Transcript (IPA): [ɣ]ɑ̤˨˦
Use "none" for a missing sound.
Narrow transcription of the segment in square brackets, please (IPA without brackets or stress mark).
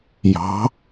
j